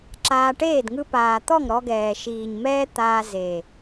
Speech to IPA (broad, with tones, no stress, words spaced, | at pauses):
ǁaː˧ʈeː˦˨d ŋɯ˧paː˨t̪ɔ˦˨ŋ ɾɔ˧ɡɛː˨ ʃiː˨ɲmɛː˦t̪aː˧ze˨